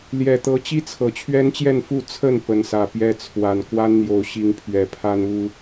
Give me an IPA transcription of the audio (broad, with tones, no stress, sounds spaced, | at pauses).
l j ɛ˨˩ t̪ ɤ˨˦ t͡ɕ i˦ t͡sʰ ɤ˨˩ t͡ɕʰ ɥ ɛ˦ n t͡ɕ j ɛ˥˨ n f u˥˨ t͡sʰ ə˥˨ n p ə˨˦ n s ä˨˩ p j ɛ˥˨ t͡sʰ w a˨˩ n k w a˦ n n̪ j o˨˩ ʊ̯ ɕ i˨˦ ŋ pʰ ɥ ɛ˨˩ pʰ a˦ n u˦